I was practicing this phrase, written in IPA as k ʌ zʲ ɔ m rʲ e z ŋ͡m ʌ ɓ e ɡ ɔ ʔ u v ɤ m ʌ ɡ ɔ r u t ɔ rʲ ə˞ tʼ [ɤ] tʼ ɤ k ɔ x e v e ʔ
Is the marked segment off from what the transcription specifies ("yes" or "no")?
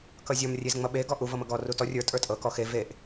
yes